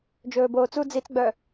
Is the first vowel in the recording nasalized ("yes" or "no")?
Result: no